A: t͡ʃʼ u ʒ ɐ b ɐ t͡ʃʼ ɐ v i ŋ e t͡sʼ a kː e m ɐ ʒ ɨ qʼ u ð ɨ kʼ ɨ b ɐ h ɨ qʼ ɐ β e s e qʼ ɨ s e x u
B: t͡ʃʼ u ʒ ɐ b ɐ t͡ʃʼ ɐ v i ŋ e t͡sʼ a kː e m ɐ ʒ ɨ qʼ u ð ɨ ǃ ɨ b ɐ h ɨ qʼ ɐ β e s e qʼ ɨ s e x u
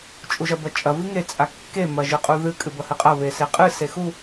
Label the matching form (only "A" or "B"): A